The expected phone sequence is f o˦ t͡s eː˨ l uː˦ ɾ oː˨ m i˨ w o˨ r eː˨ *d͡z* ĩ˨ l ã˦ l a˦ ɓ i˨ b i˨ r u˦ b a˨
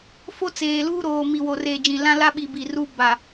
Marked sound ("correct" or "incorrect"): incorrect